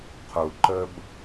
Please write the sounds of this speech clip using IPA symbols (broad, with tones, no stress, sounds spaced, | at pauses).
qʰ u˨ ǃ ə˧ b